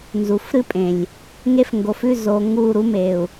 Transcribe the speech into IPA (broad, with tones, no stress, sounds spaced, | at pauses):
n z u˨ f ɾ ɨ˦ pʼ ẽ˨ lʲ | ŋ e˦ f ŋ ɡ o˨ f ʉ˦˨ z o˨ ŋ u˦˨ ɾ u˦ m e˨ u̯